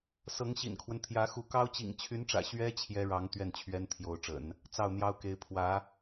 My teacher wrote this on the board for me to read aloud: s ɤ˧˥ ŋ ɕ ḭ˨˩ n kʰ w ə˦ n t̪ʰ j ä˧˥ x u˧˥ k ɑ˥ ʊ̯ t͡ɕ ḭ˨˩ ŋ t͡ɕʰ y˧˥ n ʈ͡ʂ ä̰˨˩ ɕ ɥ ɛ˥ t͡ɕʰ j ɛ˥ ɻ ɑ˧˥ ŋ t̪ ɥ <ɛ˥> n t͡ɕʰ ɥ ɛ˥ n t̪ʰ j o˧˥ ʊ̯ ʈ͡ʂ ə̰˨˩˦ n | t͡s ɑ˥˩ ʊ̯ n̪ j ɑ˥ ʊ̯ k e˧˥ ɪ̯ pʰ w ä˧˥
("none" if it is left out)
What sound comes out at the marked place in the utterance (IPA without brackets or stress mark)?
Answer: ɛ˥˩